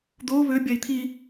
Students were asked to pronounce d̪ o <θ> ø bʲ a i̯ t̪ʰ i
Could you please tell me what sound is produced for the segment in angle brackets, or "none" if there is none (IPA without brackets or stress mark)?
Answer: β